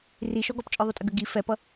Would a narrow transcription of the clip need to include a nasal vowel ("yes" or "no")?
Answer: no